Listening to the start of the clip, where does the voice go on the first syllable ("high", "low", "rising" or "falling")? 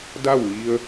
falling